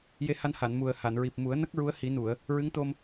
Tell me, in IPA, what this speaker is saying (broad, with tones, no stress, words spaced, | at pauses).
je˧ha˧nha˨˩˨n mu˨˩ə̯ha˨˩˨n ɹi˨˩p̚mu˨˩˦ə̯nə˦˥k̚ ɹu˧˥ə̯hi˨˩˦nu˨˩˨ə̯ | ɹɨ˧˥ŋt̪o˧m